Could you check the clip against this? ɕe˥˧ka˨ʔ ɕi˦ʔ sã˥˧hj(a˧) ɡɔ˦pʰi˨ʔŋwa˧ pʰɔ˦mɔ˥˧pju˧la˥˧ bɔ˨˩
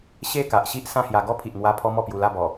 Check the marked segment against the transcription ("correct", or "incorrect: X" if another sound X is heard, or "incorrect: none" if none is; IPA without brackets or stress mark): correct